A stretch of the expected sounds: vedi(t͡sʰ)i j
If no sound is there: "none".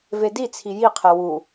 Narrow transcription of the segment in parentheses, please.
t͡sʰ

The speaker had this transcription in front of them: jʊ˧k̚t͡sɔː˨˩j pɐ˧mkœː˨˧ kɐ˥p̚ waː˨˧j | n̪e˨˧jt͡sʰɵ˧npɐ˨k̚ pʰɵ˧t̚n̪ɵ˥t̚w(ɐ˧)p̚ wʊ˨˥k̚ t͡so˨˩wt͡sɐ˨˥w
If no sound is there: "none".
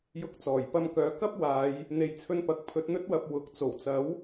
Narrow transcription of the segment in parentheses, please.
ɐ˧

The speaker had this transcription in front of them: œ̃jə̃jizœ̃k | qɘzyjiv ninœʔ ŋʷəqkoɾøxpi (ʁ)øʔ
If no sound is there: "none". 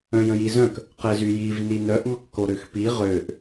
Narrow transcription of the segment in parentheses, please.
ʁ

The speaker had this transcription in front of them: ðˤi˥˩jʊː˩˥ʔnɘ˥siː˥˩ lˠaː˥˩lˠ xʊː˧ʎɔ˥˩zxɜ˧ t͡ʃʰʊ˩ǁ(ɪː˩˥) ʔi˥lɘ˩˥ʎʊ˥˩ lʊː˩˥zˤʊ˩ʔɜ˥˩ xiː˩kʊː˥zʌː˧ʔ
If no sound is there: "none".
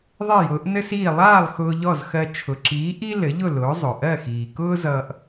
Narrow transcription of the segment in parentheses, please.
iː˩˥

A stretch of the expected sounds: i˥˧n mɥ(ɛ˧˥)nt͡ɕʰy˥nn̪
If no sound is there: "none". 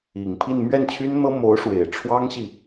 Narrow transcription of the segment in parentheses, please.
ɛ˥˩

